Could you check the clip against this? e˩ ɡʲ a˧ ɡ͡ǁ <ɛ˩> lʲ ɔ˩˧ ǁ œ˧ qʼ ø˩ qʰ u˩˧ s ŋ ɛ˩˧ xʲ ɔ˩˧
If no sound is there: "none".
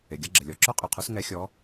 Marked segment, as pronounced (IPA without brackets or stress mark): ə˩